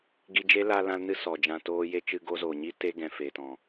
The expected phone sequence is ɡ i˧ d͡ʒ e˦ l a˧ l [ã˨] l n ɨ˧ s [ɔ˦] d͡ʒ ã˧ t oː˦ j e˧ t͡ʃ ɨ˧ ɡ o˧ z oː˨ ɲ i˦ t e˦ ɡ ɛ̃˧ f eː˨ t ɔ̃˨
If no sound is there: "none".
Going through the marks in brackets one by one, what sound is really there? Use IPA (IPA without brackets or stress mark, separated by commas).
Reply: ã˧, ɔ˨